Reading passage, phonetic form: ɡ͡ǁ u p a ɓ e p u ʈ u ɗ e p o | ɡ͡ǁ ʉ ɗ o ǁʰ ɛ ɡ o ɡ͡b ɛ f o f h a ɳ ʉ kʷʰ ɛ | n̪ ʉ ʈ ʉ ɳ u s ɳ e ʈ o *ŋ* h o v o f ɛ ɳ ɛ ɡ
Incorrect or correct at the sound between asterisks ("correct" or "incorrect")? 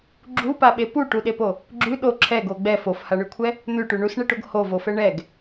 incorrect